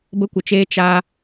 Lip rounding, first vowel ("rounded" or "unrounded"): unrounded